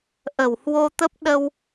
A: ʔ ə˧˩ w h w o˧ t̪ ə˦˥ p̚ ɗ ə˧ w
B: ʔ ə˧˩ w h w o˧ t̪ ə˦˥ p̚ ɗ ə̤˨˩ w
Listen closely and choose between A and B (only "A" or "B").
A